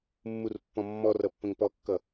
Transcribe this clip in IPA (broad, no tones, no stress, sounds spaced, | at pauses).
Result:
mː u r pː ɔ̃ mː ɔ r ʌ pː ə̃ ŋ p ɔ kː ʌ